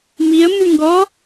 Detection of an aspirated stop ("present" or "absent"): absent